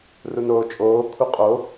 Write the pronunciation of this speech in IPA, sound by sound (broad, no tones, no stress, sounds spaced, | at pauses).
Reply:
r u n oː t͡ʃʼ oː kʰ u qʼ o